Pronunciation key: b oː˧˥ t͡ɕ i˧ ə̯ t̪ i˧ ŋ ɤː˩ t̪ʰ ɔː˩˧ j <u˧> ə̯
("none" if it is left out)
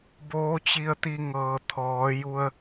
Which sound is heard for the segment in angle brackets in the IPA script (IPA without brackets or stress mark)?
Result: u˧